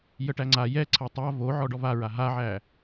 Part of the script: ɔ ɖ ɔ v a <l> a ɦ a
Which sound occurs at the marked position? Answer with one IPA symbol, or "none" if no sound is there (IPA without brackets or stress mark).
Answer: ɹ